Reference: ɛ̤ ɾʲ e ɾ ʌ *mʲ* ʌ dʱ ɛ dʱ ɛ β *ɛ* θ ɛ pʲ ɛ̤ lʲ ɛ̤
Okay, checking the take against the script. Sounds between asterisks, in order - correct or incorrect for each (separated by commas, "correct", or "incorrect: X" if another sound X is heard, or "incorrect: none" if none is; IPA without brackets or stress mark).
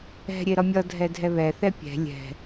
correct, correct